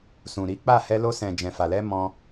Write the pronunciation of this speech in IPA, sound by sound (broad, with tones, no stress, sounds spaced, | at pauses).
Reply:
s ũ˨ ɾ i˨˦ k͡p a˦˨ h ɛ˧ l o˧ s ɛ̃˨ d͡ʒ ɛ̃˨ f a˨ l ɛ˧ m ɔ̃˧